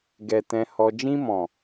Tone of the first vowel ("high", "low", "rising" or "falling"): low